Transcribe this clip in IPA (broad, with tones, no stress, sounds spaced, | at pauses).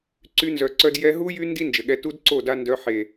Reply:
ǀ y˧ n z œ˨ ǀ œ˧ d j ɛ˧ ɦ u˧ j y˧ n d i˦ n d͡ʒ ə˨ ɠ ɛ˧ t u˦ d ǀ o˦˨ d a˦ n d œ˧ ħ e˨